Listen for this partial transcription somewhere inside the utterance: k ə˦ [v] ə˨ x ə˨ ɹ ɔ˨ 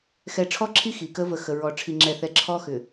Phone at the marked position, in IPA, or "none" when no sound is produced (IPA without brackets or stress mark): v